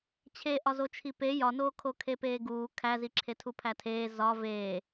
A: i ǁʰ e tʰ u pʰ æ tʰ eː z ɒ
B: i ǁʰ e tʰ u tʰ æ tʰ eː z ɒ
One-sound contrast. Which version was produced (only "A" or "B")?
A